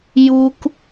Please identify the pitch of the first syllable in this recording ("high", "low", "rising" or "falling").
high